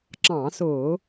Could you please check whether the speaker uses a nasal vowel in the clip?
yes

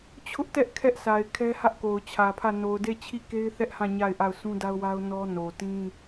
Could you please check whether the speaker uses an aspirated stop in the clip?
yes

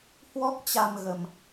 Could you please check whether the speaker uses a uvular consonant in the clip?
no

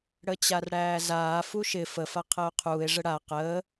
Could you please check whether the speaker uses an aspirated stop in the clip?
yes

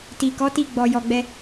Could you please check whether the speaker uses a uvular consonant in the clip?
no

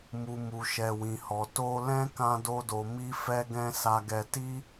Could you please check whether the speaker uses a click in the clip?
no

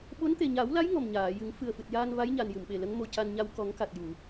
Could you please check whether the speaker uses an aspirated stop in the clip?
no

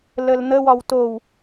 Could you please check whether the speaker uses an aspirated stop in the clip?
no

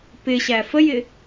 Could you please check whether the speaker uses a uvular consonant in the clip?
no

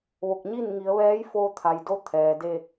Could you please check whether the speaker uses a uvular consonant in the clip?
no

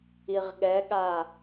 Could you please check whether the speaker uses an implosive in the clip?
yes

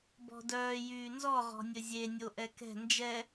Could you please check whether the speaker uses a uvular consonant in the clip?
yes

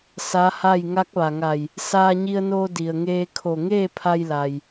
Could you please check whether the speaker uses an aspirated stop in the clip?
yes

